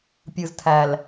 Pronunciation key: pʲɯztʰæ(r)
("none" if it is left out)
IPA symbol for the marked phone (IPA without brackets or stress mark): l